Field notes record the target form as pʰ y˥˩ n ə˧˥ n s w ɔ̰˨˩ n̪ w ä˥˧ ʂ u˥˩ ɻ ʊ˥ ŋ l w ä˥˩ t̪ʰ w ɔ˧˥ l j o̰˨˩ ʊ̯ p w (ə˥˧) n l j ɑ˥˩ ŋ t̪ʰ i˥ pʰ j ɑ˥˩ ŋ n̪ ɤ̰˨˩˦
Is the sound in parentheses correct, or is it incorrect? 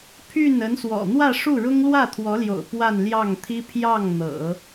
incorrect